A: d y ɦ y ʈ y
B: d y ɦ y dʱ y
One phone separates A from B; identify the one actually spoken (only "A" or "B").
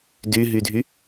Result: B